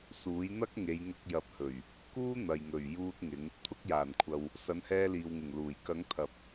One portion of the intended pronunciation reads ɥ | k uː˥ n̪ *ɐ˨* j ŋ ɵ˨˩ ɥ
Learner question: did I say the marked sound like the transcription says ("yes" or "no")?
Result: yes